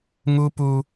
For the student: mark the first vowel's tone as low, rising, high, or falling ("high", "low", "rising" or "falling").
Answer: high